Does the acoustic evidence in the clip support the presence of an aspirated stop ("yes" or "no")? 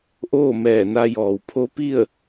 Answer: yes